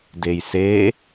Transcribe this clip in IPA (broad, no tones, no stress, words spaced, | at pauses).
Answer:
dejse